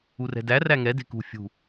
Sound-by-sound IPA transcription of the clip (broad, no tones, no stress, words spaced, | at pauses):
urɛ̤dæ ræŋɛ de̤kṳ fʲṳ